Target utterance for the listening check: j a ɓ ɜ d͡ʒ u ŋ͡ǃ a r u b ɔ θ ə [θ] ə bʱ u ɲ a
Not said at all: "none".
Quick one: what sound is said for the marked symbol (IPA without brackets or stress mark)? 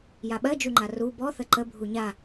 ǃ